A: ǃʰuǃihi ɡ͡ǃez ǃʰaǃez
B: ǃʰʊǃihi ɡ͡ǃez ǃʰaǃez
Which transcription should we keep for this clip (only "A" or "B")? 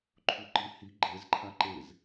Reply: A